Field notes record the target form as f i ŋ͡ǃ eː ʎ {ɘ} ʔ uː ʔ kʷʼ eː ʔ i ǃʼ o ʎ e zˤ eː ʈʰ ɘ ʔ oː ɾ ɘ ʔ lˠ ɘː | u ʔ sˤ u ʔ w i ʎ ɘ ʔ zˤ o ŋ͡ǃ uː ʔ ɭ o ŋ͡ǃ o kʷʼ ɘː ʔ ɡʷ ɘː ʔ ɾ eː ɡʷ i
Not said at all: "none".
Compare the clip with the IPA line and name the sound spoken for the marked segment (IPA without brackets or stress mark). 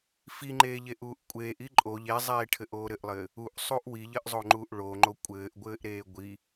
e